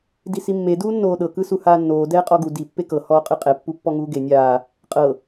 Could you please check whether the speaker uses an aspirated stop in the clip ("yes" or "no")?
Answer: no